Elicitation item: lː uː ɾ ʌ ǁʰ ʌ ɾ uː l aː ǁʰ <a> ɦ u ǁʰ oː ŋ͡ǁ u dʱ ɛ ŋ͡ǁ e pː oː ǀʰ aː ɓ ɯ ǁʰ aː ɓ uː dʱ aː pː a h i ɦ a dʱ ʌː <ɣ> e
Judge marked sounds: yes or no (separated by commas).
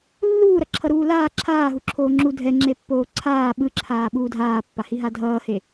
no, no